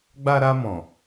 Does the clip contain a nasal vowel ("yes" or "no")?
yes